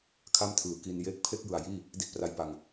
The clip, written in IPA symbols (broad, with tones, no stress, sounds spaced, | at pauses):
kʰ a˥˩ m tʰ ɯː˨˩ k i˧ n j eː˥˩ k̚ pʰ e˥˩ k̚ j ɯ˨˩ a̯ j iː˥˩ | d i˦˥ t̚ p r a˧ j p a˧ ŋ